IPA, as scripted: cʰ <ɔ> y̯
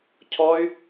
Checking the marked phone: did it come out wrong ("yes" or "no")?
no